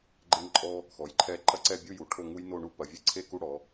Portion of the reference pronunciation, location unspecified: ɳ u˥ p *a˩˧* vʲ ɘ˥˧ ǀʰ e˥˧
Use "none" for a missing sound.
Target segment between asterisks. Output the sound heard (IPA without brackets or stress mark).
ɐ˩˧